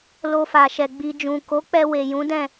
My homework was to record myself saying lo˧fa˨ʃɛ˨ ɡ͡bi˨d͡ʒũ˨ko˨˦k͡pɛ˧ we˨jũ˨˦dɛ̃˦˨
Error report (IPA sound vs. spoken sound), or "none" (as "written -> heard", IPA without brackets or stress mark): none